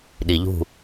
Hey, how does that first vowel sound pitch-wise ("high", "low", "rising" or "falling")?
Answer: low